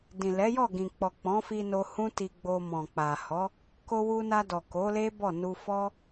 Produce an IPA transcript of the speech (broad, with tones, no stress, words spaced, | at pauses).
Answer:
dĩ˨lɛ˨˦ jɔ˦˨ɡĩ˨k͡pɔ˨ k͡pɔ̃˨˦fi˧no˧ hũ˦ti˧ɡ͡bo˧ mɔ̃˨k͡pa˨hɔ˨˦ | ko˧wu˧na˧ dɔ˨ ko˨˦le˦ bɔ˦˨nu˧ fɔ˦